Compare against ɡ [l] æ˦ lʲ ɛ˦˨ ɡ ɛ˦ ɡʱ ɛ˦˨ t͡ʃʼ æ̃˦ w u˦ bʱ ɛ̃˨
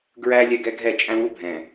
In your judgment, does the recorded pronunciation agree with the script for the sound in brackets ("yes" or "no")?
no